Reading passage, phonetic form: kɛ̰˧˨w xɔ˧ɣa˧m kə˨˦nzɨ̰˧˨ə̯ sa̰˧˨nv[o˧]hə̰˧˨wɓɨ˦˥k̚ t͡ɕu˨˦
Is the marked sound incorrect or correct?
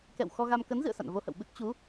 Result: correct